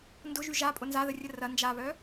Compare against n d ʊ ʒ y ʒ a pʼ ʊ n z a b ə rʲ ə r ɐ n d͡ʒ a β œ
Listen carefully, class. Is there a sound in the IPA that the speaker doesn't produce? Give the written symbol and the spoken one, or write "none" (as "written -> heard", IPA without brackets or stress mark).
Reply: b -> ð